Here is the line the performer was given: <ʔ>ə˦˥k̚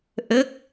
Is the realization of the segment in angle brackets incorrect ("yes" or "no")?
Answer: no